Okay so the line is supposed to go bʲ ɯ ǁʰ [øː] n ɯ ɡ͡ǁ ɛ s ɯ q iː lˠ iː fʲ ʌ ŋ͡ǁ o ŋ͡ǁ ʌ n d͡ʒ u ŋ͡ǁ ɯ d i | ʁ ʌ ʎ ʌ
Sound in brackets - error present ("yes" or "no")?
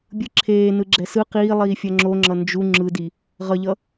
yes